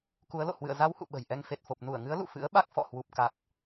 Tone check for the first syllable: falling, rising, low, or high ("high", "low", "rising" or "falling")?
rising